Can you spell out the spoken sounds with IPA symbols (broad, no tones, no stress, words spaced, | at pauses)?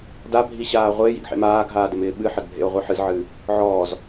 dabʱiɕaː ʁʷɪːjḭɡħḛm aːɡɦaːdɪmɪː ɓɨħɐdbʱḛo̯ʁʷɨ ħɨzʕɨː | ʕɔːz